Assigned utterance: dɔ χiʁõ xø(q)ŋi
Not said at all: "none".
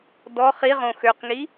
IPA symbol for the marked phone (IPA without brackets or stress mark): q